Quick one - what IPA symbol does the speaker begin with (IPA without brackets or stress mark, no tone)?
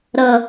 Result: ɾ